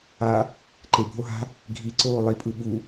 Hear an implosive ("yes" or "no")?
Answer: yes